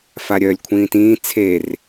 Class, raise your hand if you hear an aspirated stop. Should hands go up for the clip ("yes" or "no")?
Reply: yes